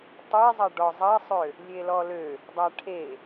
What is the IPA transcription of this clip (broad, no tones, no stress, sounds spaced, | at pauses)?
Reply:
tˤ e zˤ ɐ ɖ ɔ zˤ ɐ sˤ ø | lʲ e l ɔ l ø | dˤ a ʈʰ e